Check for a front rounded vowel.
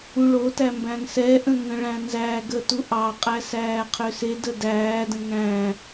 present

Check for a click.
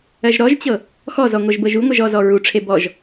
absent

